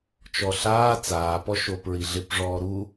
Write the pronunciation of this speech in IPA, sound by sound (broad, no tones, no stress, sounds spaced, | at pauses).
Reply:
t͡ʃ ɔ ɬ aː t͡s aː p ɔ ʃ o p ɹ i ɮ ɪ p ʐ ɔː ɾ u